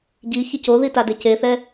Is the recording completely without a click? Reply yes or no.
yes